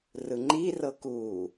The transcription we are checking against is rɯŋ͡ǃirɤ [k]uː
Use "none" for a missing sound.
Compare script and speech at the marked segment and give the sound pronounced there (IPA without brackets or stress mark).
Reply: k